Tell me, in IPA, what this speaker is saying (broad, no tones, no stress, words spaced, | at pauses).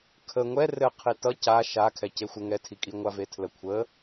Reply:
kʰə ŋʷɛ rɘ qʰitʌ ca ʃa kʰɛcexʷə ŋɛtʰikʼiŋʷa vetʰlə kʷʰə